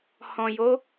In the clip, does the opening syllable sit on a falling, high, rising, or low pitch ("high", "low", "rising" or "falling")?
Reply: low